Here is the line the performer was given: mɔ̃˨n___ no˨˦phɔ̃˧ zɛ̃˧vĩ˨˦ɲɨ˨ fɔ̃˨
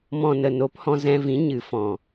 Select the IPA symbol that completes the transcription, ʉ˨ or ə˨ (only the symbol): ə˨